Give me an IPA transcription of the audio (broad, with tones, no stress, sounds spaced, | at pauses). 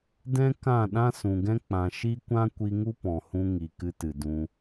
d ɛ̃˦ k ã˦˨ ɗ ã˦ s ũ˨ ɡ ɛ̃˦ k͡p ã˨ ʃ i˦ kʷ ã˦ kʷ i˧ ŋ u˦ p ɔ̃˨ h ũ˧ ŋ i˨ k ɨ˧ t ɨ˨ d ũ˧